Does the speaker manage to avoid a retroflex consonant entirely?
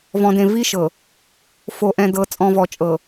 yes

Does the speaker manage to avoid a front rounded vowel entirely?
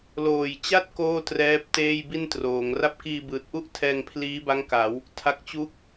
yes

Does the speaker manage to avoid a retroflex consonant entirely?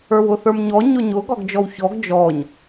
yes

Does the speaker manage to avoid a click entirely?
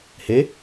yes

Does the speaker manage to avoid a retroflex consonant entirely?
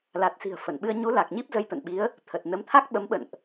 yes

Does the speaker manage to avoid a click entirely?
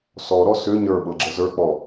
no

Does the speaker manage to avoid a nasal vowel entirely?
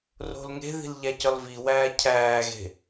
yes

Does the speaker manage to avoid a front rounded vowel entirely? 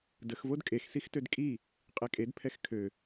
no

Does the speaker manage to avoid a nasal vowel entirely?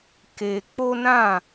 no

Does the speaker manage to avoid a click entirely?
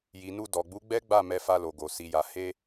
yes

